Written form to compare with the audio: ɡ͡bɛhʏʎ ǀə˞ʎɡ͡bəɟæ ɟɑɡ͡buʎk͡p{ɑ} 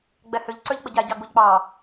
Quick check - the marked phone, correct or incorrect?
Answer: correct